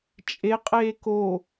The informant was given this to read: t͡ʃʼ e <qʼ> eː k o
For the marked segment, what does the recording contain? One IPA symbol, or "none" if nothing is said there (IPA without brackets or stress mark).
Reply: qʼ